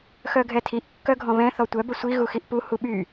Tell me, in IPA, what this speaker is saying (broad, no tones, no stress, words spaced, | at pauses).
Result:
xœɡʱɛtʰiʔ kːœɡʱɔ̃βɛ̃ θɔtʷœ bəsʷi ɣuxiʔpu huɓy